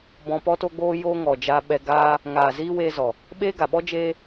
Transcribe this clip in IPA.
b ɔ̃˧ p ɔ˦ t o˦ ɡ͡b oː˦ j oː˧ ŋ ɔ˨ d͡ʒ aː˧ ɓ ɛ˧ ɡ aː˧ | ŋ aː˨ z iː˧ w eː˧ z ɔ˨ | ɓ eː˦ ɡ a˨ ɓ ɔ˦ d͡ʒ eː˦

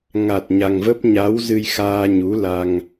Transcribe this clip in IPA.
ŋ a˨˩ t̚ ɲ a˨˩ ŋ v ə˦˥ p̚ ɲ a˨˦ w z ɨ˧ j x aː˧ ɲ u˨˦ l a˧ ŋ

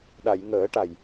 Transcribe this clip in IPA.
ɗ a˨˩˨ j ŋ əː˨˩˦ ʈ a˨˩ j

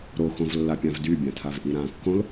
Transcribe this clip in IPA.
ɾ o x õ v lː a pʲ ã v d y bʲ ã tʰ a v ʔ i ɾ ã kː õ l

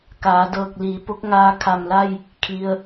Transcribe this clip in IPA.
k aː˩˧ d ɤː˧˩ k̚ l iː˩˧ p o˧˥ k̚ ŋ aː˧ kʰ a˧˩ m l a˥˨ j | kʰ i˩ ə̯

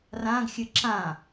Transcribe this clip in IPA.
r ã ɡ xʲ ɨ ǁ ã

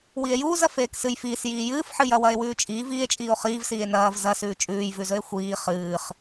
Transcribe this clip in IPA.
w i e̯ j uː z ɐ f eː k s ɨ j f iː s j iː j ɨː f ħ ɨ j ɐ w ɐ e̯ w ʉː t͡ʃʼ iː v iː e̯ t͡ʃʼ iː o̯ χ iː v s iː e̯ n ɐː v z ɐ s ʉː t͡ʃʼ ʉː j v ʉ z ɵ e̯ xʷ iː χ ɨː χ

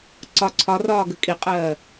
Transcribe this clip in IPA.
ǀ ɒ ǀʰ ɒ r ɒː ɡ ə kʼ i qʼ ɜː

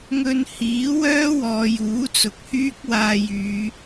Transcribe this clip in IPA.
ŋ ɵ˧ n h iː˨˥ w œː˥ w ɔː˨ j uː˨˥ t͡s ʊ˨ k̚ h yː˥ k̚ w aː˧ j yː˨˧

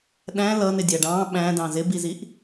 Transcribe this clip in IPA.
ɗ æ̃ l ʌ n ɪ dʲ æ ɖ ɑ̃ː ɓ æ̃ d ɑ̃ z ɪ b i z i ʔ

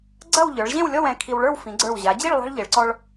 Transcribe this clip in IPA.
ɡ͡ǀ ɐ˥˧ w ʎ ə˞˩˧ ɭ ʑ ẽ˥˧ w lʲ ɔ˥˧ w ɛ̃˧ kʰ i˧ w ɭ ə˞˥˧ w f ĩ˩˧ ɡ͡ǀ ə˞˧˩ w ʑ a˩˧ d͡ʑ i˥˧ ɭ lˠ a̤˥ ɭ ʎ e˩˧ ɭ ǀ ɔ˧ ɭ

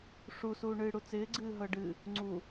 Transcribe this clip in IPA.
ʂ u s uː ɳ ɨː ɽ u t͡s ɪː ɡ͡ǀ ɨː ɦ ɤ ɖ ɨ | ŋ͡ǀ u

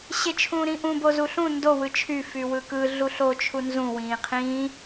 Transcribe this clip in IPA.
ɕ e t͡ʃʰ ũː ɾ ĩ ʔ ũ b o z u ɬ ũ n d o w ɯ t͡ʃʰ y f y w ɯ k ɯ ɮ u ɬ o t͡ʃʰ u n z ũ w ĩː qʰ ĩː

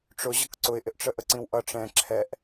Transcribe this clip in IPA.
ʈ͡ʂ ʊ ʑ ʌ k ǀ ʊ ɪ̯ ʔ ɪ ʔ ʈ͡ʂ ə ʔ ə ǀ ĩ w ʔ ʌ ʈ͡ʂ ɛ̃ ǁʰ ɛ ʔ

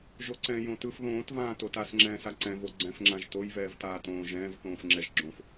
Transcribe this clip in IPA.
ʒ o ǀ ɛ̃ j õ t ɯ f ð õː t v ãː t o t a s ŋ͡ǁ ɛ̃ː s a ǀ ɛ̃ v o ɡ͡ǀ ɛ̃ f ŋ͡ǁ ã ʒ t o j v ɛː v t aː t õː ʒ ɛ̃ː v θ õː f ŋ͡ǁ ɛ ʒ ɡ͡ǁ õ f

